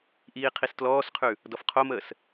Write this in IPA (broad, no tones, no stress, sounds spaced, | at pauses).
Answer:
ʔ iː qʰ i s t l ɔː s qʰ ʉ | d ɔ f qʰ o m əː s